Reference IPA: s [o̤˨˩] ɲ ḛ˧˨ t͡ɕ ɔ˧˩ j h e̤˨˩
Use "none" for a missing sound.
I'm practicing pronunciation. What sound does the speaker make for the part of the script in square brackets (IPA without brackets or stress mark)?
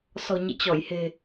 ɔ̤˨˩